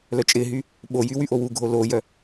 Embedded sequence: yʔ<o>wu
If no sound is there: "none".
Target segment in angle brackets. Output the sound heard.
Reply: o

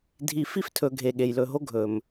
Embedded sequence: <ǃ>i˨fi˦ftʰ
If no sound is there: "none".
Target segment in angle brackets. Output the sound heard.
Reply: dʱ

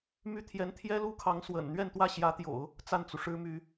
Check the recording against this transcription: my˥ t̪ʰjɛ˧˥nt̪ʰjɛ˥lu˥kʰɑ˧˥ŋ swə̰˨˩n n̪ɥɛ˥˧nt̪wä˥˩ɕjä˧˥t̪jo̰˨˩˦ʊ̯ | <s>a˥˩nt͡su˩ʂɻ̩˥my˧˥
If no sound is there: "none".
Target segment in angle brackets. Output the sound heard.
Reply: t͡s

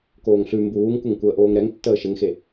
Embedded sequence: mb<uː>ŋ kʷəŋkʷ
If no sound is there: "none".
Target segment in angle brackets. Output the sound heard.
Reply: uː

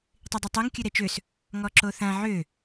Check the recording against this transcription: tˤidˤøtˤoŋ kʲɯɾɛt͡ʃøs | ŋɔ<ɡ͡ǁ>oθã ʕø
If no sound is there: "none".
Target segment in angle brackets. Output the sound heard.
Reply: ǁ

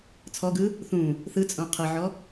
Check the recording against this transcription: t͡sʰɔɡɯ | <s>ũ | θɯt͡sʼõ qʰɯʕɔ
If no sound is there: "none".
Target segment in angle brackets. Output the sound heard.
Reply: θ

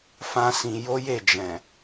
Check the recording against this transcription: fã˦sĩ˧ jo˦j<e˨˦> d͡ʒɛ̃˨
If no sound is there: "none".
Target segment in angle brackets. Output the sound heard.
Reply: e˦˨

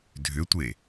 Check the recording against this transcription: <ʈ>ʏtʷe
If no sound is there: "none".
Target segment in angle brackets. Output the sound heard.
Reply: dʱ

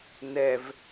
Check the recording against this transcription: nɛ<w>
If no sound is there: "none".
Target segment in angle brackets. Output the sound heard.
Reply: v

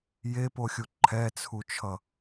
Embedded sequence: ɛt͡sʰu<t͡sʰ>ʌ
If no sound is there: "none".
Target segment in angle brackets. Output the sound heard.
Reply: t͡ʃʰ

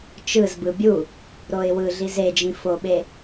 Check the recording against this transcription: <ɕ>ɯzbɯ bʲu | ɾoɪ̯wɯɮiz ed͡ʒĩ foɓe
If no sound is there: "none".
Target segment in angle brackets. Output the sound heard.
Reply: t͡ʃ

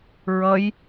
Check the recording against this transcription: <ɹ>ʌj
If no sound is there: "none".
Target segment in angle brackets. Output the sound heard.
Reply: ɹ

